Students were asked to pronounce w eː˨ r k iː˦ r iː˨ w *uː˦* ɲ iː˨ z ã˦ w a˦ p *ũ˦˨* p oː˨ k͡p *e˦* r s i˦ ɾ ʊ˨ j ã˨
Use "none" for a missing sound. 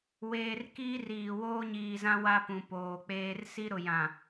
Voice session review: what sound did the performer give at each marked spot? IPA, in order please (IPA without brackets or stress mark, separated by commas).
oː˦, ũ˨, eː˦